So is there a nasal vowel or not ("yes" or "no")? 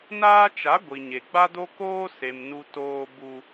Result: no